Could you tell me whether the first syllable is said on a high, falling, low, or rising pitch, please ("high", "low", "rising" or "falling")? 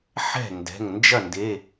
falling